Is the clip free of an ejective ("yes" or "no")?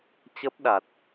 yes